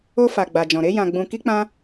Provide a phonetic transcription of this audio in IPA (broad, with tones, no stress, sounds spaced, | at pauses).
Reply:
o˧ f a˨ ɡ͡b a˨ d͡ʒ ɔ̃˨ ɾ e˧ j ã˨ ɡ͡b ũ˨ k i˧ k͡p ã˧